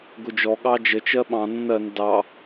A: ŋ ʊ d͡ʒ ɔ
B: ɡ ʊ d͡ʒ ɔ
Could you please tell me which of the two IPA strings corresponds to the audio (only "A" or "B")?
B